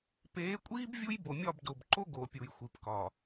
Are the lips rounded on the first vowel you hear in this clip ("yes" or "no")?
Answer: no